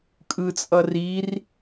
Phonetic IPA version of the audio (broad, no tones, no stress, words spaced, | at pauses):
kʼɯt͡sʼʌ rir